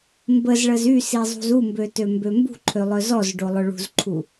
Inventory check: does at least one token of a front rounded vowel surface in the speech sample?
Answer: yes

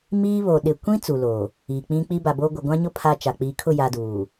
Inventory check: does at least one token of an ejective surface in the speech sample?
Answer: no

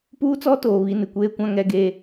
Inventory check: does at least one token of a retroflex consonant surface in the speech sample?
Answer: no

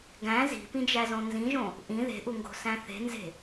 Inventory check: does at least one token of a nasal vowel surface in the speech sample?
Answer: yes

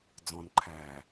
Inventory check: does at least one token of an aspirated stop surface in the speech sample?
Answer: yes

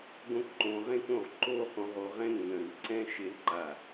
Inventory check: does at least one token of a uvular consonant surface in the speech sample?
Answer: yes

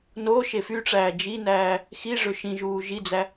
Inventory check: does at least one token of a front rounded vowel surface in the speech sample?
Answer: yes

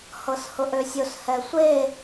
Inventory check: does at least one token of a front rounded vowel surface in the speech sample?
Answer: yes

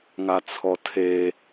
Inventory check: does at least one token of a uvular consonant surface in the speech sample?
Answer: no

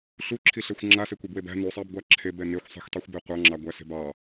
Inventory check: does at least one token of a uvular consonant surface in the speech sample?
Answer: yes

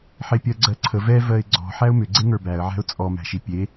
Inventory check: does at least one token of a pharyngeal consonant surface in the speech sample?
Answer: yes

